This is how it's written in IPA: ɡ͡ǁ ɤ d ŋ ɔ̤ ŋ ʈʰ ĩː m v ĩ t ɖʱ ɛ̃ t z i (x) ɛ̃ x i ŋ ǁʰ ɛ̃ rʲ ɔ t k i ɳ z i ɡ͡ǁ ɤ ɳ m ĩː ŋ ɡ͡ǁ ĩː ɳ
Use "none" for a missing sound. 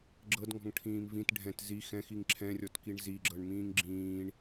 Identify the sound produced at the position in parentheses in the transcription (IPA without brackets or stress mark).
x